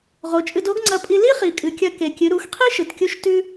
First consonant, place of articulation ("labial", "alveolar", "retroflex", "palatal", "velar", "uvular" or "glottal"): uvular